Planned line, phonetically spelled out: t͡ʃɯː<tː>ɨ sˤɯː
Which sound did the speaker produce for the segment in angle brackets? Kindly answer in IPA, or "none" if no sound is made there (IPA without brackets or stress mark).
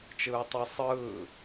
tˤ